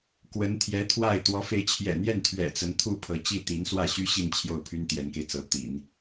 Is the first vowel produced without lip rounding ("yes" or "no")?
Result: yes